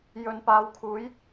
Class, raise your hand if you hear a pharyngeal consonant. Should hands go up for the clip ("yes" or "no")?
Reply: no